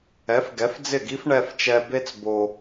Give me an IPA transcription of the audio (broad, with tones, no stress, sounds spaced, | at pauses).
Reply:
ɛ˩˥ f ɡ ɛ˩˥ f d͡z ɪ˥˩ ɡ i˥ f ɳ ɛ˧ f t͡ʃ ɛ˧ b e˥ t͡s b o˧